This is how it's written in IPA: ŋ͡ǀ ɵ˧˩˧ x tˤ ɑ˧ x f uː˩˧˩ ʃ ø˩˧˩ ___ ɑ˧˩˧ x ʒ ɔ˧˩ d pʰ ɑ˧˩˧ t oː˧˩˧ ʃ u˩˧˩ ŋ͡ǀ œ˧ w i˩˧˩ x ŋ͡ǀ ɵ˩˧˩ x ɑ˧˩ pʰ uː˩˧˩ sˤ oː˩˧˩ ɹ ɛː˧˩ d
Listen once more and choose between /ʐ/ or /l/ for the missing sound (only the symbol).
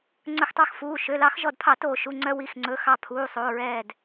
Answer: l